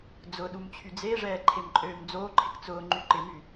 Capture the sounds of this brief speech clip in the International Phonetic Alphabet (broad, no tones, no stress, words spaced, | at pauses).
d͡zʊɗum t͡ɕʰyd͡zeʐɛː ǃʰemǃʼøːmd͡zoːǃʰɪk t͡sʊː ŋ͡ǃyǃɪmy